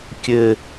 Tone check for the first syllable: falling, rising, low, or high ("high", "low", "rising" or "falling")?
high